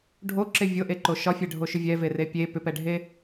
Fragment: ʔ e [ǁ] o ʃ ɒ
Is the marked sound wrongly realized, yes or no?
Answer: yes